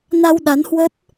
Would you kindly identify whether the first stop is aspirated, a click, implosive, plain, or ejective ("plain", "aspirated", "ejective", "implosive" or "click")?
implosive